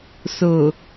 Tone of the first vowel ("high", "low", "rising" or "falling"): low